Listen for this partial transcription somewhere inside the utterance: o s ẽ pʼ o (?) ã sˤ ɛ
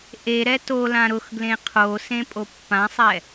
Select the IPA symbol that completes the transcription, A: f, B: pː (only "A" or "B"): B